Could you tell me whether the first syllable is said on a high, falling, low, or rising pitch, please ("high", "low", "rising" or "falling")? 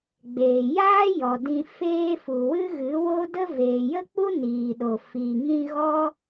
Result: low